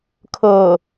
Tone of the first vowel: low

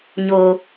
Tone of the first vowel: high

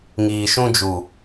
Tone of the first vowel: low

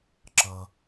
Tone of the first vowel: low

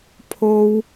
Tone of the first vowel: high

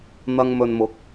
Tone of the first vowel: low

